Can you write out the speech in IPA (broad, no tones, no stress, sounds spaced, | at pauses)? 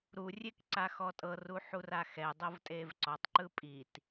ɾ u rʲ e k ǀ a x ɔ tʼ ɤ r u ħ u r a x ɛ dˤ ɤ v tʼ e v ǀ ɔ tˤ ǃ ɯ pʼ i t